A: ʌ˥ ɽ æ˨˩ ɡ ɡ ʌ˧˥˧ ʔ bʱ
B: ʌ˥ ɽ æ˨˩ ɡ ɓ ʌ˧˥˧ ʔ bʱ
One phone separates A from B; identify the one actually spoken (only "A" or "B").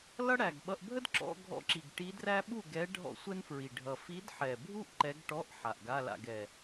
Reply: B